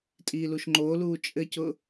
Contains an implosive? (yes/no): no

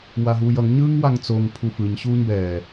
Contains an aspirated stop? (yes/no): yes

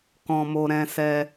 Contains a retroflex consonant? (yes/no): no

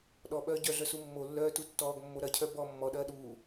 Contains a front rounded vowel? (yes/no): yes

